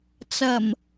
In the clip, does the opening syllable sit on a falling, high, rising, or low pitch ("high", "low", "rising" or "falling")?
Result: low